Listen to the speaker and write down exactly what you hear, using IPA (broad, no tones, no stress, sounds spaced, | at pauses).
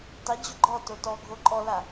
tˤ i d͡ʑ ʊ ɡ͡ǃ ɔ t o t ɔ ɡʱ o ǃʼ ɔ l a